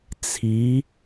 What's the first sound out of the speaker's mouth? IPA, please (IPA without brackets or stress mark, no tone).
t͡sʰ